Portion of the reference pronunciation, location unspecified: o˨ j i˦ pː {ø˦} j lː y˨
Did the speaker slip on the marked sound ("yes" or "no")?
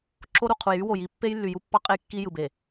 yes